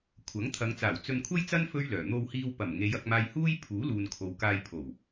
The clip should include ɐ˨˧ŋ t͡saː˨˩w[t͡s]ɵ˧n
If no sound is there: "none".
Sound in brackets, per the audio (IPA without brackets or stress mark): t͡s